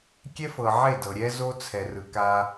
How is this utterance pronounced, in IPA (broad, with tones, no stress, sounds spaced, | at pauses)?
kʲ ɛ˦ f ɤ˨ ʕ e˦˨ d ɤ˨ ɾʲ ɛ˦ z o˦ t͡sʰ ɛ˨ r ɯ˨ k a˦